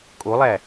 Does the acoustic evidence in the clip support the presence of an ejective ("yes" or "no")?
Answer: yes